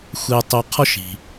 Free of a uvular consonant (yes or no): no